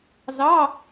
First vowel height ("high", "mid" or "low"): low